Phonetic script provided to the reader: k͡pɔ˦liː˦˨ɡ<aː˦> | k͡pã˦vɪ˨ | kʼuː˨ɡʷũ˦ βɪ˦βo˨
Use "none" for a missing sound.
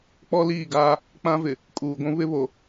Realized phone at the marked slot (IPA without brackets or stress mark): aː˦